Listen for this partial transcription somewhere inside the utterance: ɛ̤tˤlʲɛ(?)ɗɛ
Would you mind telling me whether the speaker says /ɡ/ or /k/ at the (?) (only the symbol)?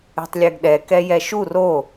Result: ɡ